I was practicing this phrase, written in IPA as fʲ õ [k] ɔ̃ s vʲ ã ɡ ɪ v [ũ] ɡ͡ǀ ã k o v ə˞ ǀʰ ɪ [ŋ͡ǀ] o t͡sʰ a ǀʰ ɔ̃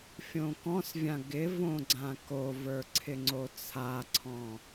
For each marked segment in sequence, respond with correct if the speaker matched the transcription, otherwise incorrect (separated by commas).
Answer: correct, incorrect, correct